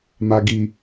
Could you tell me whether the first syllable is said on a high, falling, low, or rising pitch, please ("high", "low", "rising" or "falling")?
low